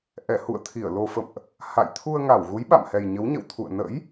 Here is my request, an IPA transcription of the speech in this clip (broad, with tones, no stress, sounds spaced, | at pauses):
ʔ ɛ˧˩ h ṵ˧˨ ə̯ t̪ʰ i˧˩ ə̯ l o˨˩ f ə̰˧˨ m ʔ | h a̰˧˨ j t̪ʰ u˧ ə̯ ŋ a˧˩ w ɣ u˨˦ j ɓ a̰˧˨ m h ɛ˨˩ j ɲ ə˨˦ w ɲ ə̰˧˨ w t̪ʰ ṵ˧˨ ə̯ n ə̰˧˥ j